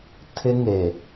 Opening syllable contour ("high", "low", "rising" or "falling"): high